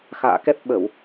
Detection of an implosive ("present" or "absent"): present